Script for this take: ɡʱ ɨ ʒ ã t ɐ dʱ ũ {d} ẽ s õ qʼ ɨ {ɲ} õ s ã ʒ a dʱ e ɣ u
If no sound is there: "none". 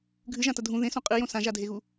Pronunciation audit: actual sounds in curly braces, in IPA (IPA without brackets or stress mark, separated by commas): ð, j